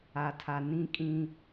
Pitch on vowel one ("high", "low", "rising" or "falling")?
low